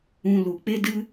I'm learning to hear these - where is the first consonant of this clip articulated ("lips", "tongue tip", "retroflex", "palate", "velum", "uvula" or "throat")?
tongue tip